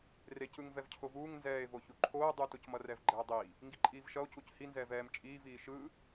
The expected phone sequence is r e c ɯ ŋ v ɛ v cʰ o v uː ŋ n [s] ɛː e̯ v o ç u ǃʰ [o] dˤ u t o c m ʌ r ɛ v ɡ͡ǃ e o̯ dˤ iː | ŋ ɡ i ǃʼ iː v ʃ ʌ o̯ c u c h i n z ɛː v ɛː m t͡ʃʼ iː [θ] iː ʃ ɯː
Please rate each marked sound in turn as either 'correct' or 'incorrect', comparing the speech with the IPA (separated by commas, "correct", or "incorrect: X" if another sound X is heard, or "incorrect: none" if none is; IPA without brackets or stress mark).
incorrect: z, incorrect: oː, incorrect: v